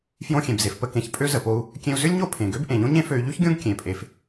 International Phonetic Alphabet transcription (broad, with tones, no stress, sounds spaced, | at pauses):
f j õ˧ xʲ ẽ˩ b z e˩ f p ə˧ k ẽ˩ ç pʼ ø˥ z ə˩ p o˧ u̯ | kʲ ẽ˧ u̯ z ʏ˥ lʲ ɲ o˥ pʰ ẽ˩ ɡ ø˥ b ʔ ẽ˩ ʎ õ˥ ɲ ẽ˥ f ø˧ y̯ ʎ y˥ ç ɡʲ õ˥ ɡ kʲ ẽ˩ pʼ e˩ f